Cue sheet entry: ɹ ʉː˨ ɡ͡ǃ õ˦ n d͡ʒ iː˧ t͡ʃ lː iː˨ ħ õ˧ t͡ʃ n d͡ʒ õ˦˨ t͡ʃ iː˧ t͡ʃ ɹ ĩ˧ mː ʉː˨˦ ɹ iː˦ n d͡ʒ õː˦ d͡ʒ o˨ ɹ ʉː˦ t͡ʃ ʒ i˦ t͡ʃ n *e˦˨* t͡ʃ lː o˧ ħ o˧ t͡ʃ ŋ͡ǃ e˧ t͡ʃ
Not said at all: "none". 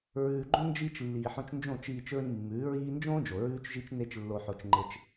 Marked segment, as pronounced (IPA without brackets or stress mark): e˦